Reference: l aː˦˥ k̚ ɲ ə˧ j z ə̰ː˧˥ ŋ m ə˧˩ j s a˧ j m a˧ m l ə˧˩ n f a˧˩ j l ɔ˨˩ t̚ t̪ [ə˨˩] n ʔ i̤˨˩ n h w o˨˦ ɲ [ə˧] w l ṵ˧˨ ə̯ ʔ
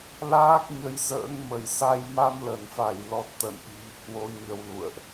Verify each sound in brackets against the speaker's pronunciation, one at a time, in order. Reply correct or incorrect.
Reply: incorrect, correct

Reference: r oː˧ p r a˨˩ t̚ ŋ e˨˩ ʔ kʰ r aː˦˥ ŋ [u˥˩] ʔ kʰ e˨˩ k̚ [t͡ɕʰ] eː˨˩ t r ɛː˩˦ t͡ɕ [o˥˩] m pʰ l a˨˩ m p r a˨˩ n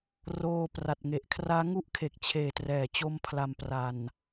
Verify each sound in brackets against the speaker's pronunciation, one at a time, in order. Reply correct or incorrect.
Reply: incorrect, correct, incorrect

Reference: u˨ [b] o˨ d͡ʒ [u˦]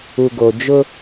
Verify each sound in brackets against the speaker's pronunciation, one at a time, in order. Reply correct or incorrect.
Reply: incorrect, incorrect

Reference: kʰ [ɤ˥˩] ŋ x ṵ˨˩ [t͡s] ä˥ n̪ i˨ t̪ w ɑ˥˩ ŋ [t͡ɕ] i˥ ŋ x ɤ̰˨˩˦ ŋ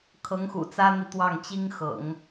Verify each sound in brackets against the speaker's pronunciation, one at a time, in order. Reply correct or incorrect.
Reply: incorrect, correct, correct

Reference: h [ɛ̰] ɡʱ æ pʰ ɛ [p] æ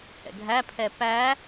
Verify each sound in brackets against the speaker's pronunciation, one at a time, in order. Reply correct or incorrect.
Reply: correct, correct

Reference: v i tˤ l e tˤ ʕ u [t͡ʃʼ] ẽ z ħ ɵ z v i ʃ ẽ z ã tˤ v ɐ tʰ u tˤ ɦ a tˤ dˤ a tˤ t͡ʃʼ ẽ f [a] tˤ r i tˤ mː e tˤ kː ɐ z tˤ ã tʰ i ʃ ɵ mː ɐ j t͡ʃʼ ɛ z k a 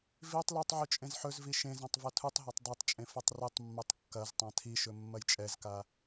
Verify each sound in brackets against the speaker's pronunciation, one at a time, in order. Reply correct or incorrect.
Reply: correct, incorrect

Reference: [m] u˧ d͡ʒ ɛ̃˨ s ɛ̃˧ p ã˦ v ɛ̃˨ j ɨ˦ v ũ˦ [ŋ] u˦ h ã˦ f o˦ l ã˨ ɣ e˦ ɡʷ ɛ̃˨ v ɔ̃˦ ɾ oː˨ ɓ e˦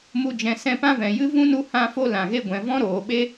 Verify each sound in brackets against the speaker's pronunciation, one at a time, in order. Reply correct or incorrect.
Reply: correct, incorrect

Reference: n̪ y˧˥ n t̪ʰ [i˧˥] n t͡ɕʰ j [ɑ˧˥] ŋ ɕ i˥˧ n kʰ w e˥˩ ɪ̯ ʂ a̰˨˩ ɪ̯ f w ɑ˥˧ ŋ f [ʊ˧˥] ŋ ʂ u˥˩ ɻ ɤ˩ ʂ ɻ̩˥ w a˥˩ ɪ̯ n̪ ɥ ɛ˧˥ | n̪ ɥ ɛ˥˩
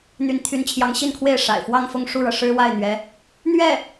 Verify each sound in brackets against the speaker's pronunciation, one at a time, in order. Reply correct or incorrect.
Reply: incorrect, correct, incorrect

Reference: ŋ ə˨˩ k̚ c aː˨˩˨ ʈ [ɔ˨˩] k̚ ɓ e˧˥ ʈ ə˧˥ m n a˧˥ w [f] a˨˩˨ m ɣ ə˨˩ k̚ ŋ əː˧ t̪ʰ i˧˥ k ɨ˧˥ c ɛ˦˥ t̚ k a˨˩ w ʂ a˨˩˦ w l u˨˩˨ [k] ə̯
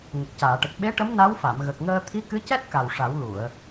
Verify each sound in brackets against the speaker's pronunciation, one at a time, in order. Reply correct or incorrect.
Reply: incorrect, correct, incorrect

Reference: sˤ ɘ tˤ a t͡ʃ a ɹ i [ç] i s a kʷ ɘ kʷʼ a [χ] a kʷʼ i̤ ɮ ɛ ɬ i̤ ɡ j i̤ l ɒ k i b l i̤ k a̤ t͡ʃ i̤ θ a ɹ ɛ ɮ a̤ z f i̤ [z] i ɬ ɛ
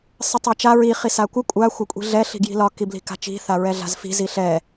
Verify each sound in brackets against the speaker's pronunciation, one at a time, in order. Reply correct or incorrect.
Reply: incorrect, incorrect, correct

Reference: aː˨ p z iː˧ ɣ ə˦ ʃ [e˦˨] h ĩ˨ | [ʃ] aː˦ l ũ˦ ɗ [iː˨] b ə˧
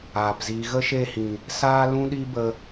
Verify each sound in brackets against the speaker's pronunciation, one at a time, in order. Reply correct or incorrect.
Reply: correct, incorrect, incorrect

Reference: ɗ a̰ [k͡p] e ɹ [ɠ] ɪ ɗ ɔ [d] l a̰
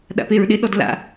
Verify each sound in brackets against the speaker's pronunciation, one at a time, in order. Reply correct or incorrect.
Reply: incorrect, incorrect, correct

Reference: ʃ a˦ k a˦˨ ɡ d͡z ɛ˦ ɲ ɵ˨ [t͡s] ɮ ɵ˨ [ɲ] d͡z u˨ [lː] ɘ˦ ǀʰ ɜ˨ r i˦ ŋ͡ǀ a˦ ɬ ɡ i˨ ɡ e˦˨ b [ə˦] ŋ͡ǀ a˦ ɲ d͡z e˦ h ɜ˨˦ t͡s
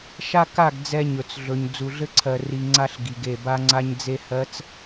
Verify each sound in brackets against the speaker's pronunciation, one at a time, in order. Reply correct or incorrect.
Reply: correct, correct, incorrect, incorrect

